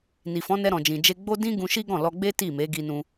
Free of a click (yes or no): yes